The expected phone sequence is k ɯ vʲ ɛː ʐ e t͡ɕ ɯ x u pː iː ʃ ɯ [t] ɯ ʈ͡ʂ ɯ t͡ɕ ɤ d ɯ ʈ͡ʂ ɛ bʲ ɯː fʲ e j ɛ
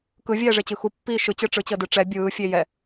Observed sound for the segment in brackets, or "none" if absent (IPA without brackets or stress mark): t͡ɕ